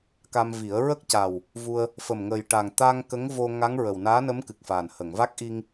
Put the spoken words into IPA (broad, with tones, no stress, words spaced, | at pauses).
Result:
ka˧mvi˨˩˦ə̯ ɹə˦˥k̚ca˨˩w | vu˧ə̯ | fə˨˩mŋə˨˩jʈa˨˩ŋ t̪a˧ŋ kə˧˥ŋ vo˧ ŋa˧˥ŋɹə˨˩w naː˧˥nə˧˥mkɨ˨˩k̚faː˨˩n hə˨˩˨ŋva˦˥k̚ʔi˧ŋ